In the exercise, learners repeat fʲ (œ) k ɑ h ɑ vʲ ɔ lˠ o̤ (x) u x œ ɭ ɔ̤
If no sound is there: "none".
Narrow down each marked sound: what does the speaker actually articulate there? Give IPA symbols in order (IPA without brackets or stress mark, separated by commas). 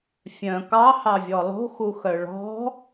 œ̃, x